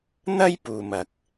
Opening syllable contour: high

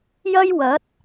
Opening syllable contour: high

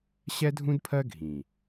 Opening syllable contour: high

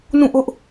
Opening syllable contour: falling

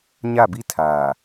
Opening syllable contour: falling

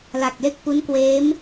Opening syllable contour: low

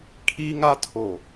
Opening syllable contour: high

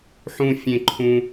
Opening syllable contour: high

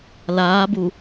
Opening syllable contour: rising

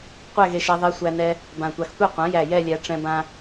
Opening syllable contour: falling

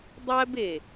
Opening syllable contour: high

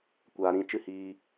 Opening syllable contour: low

